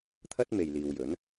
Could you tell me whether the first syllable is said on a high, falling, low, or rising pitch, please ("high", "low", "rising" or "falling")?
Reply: high